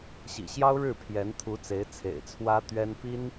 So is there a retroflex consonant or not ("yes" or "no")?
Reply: yes